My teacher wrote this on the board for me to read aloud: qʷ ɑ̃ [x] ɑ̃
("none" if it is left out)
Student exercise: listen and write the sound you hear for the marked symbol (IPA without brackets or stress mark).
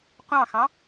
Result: x